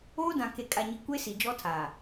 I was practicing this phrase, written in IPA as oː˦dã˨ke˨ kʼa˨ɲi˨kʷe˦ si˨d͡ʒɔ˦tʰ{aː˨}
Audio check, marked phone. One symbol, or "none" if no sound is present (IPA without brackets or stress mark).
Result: aː˨